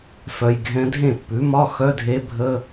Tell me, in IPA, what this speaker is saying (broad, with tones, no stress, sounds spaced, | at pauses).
f œ˨ j ɡʱ ɛ̃˧˥ dʱ ẽ˥˩ pː ʉ˩˥ m ɒ˧˥˧ x œ˧˥˧ dʱ e˧˥ bʱ ə˧˥˧